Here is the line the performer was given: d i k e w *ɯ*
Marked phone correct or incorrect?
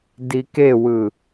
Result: correct